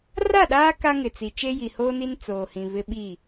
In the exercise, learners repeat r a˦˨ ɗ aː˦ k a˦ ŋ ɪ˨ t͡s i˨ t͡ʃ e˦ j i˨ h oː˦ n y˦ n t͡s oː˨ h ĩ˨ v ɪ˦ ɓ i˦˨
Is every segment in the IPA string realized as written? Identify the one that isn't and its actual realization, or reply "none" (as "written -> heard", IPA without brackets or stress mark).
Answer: y˦ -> i˦